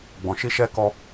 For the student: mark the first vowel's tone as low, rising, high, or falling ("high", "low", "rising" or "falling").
low